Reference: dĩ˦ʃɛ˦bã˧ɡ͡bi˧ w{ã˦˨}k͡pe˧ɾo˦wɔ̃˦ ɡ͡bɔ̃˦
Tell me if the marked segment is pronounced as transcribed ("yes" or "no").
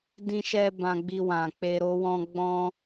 no